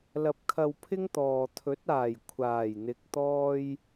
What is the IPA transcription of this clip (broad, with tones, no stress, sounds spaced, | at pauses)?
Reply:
l ɐ˧ p̚ kʰ ɐ˧ w pʰ ɪ˥ ŋ t̪ ɔː˨ t̪ʰ ɵ˨˥ t̚ aː˨˩ j kʷʰ aː˨˩ j n̪ ɪ˨ k̚ t̪ ɔː˧ j